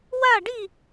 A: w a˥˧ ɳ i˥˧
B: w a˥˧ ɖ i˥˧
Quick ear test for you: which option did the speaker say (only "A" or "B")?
B